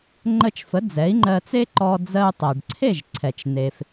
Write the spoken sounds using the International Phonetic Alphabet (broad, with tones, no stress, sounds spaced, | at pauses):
ŋ͡ǃ ə˧ t͡ʃ f ə˩˥ d͡z ɛ˩˥ i̯ ŋ͡ǃ ɜ˧ t͡s e˥ ǃ ɔ˧ d͡z ɜ˧ u̯ tˤ ɜ˩ ɖ ǀʰ e˥˩ ʒ ǀʰ ɛ˩ t͡ʃ n e˩ f